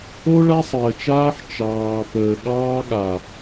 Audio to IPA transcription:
o˦ ɭ a˦ sˤ əː˨ t͡ʃ aː˦ ħ t͡ʃ ɑː˨ p əː˨ ɠ ɑː˦ ɠ a˨

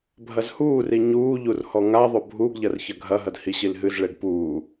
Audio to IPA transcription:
bʱ ɐ z h uː r i ɲ uː ʎ u r h ɔ ŋ a ðˤ o bʱ u ɡ ʎ ɐ r ç ɐ ɡʱ ɐ ɦ ɐ d h i ɕ i l ɦ ɨ z ɭ e ɡ p uː

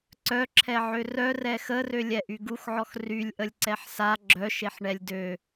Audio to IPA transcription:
ǀ œ ǁʰ ɛ ʕ ø r œ r ɛ x ə r ø lʲ ɛ ʔ y ɡ u x ʕ ɔ x r y lʲ ʔ ə lʲ ǀ ɛ ħ s a ɡ͡ǁ œ ʃ e ħ ɳ ɛ lʲ d ø

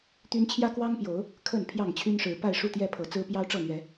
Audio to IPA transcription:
t̪ y˦ n t͡ɕʰ j ä˦ k w ɑ˦ ŋ p j o˨˦ ʊ̯ | kʰ ə˥˨ n pʰ j ɑ˥˨ ŋ t͡ɕʰ y˦ n ʂ ɻ̩˨˦ p a˥˨ ɪ̯ ʂ u˥˨ t̪ j ɛ˥˨ pʰ ɤ˨˦ t͡s ɹ̩˦ p j ɑ˦ ʊ̯ ʈ͡ʂ ɤ˥˨ n̪ ɥ ɛ˨˦

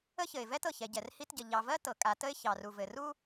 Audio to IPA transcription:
ə˥ ç ɘ˩ ɪ̯ v ɛ˥ t ɤ˩ ç ɛ˩ ɟ ɛ˩ r h i˥ t ɟ ə˩ ʎ ɑ˩ v ɜ˥ t ɤ˩ kʼ a˩ t ə˥ ɪ̯ ç ɑ˩ r u˩ v ɘ˩ r u˥

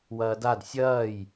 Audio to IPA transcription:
w ɐː d a d sʲ ɐː j

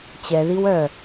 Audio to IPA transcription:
t͡ɕ ɛ ð i w œ

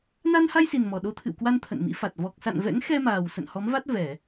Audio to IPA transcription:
n a˧ n h a˧ j s i˨˩ n m ɔ˨˩ ɗ o˧ t̪ʰ ɨ̰˧˨ w k w a˧ n t̪ʰ ə̰˧˨ n m ḭ˧˥ f a˨˩ t̚ v ɔ˨˩ k̚ s a̰˧˨ n v ɛ̰˧˥ ŋ x ɛ˧ m aː˨˩ w s ə̰˧˨ n h ɔ˨˦ m v a˦˥ t̚ v ɛ˧˩˨

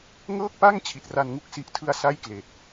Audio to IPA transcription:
ŋ ɤː˥˩ k̚ p a˥˩ ŋ t͡ɕʰ i˨˩ t̚ r a˧ n ŋ u˥˩ k̚ s i˨˩ ʔ tʰ ɯ˧ a̯ s a˥˩ j k l e˨˩ k̚

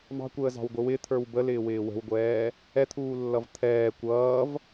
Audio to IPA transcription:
m ɑ̤ kʷ əː z ɑ̤ w ɡʷ ɪ w ɪ t̪ʰ ə˞ w b ə l ɪː w ɪː w ə̤ w ɡʷ ɛː | ɛ t̪ʰ uː lː ʌ v t̪ʰ ɛː kʷ ʌː v

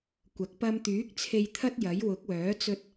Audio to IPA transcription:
kʷ ɐ˨˥ k̚ p ɐ˧ m t̪ yː˨˥ k̚ t͡sʰ e˧ j t̪ʰ ɐ˥ t̚ j ɐ˨˥ j w ʊ˨˥ k̚ w œː˨˥ t͡s ɵ˧ t̚

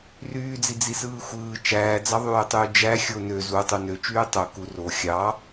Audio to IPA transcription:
r yː d͡z i d͡z i s ɯː xʷ ɯː t͡ʃ æː d͡z ɑ ðˤ yː tˤ yː d͡ʒ æ xʲ o n ø z u tˤ u n ø t͡ʃ yː tˤ o k u r o xʲ ɑ

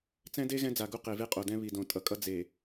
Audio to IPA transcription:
t͡s ɛ̃˦ d e˦ ɣ ɛ̃˦ d͡z a˨ ɡ u˦ q e˨ v e˦ qʼ o˨ d ɛ̃˦ β i˨ d õ˨ tʼ ʌ˨ kʼ ʌ˦ d͡z e˨

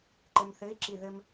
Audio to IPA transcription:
ǃ ɘ m θ ɘ i̯ ǁ i ð ɘ m

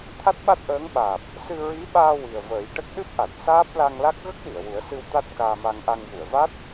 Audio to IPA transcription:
t̪ʰ a˦˥ t̚ ɓ a˦˥ t̚ ʔ əː˧˥ ŋ ɓ aː˨˩ p̚ | s ɨ˧ ɹ i˧˥ ɓ aː˧ w i˨˩ ə̯ v əː˨˩˦ j ʈ ə˦˥ k̚ ɗ ɨ˦˥ p̚ ʔ a˨˩ t̚ s aː˦˥ p̚ l a˧ ŋ l a˦˥ k̚ ɣ ə˦˥ k̚ ɗ i˨˩˨ ə̯ w u˨˩˦ ə̯ s ɨ˧ w t̪ a˦˥ t̚ k aː˧ m a˧ ŋ ʔ a˧ ŋ j u˨˩˨ ə̯ v a˦˥ t̚

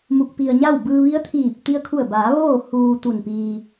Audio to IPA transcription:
m u˧ k̚ p i˧ ə̯ ɲ a˥˨ w b ɯː˧ ʋ i˧˥ ə̯ t̪ʰ iː˧˩ p̚ t̪ i˧ ə̯ kʰ u˧˩ ə̯ b aː˩˧ ʋ oː˥˨ h uː˧ t̪ u˧˩ n p iː˧

